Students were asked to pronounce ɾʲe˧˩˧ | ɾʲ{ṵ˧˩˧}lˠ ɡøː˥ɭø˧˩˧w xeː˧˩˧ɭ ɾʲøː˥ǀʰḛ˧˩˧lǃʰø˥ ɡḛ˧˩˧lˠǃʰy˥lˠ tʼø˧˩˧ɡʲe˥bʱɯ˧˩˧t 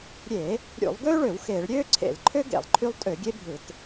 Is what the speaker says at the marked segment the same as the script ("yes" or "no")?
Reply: yes